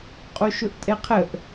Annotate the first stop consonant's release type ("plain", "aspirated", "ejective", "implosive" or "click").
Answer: ejective